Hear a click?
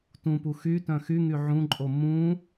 yes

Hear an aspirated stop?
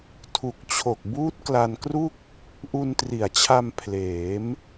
yes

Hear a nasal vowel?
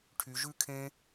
yes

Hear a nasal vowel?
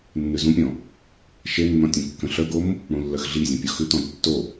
yes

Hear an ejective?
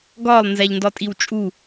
yes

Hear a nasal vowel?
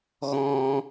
yes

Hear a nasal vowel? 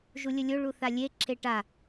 no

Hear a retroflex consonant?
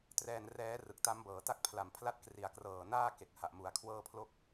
no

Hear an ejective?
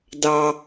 no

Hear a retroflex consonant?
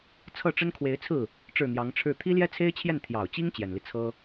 yes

